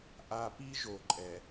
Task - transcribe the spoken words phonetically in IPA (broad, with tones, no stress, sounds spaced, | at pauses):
ʔ a˨ p i˦ ʒ o˨ ǃʼ ɛ˨